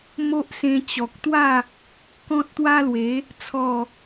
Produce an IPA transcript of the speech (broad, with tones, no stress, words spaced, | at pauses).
mo˦ʔsẽ˧ t͡ɕɔ˨k̚t̪wa˥˧ | kɔ̃˦t̚t̪wa˦lwe˨˦ | t͡sʰɔ˥˧